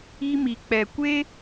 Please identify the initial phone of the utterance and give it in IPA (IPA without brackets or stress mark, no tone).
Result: i